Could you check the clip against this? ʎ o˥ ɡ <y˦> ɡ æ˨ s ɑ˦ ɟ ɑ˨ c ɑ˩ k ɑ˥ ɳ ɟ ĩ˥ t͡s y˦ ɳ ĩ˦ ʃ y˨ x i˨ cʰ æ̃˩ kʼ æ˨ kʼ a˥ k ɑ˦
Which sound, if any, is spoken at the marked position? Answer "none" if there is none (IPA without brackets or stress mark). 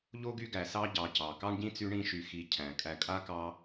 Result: y˦